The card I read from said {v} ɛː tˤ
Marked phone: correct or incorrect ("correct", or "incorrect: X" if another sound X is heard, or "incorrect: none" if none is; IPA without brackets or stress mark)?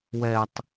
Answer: incorrect: w